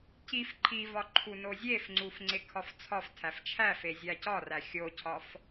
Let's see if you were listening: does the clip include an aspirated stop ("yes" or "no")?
yes